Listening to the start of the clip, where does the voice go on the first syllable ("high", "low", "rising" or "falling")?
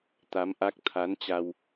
rising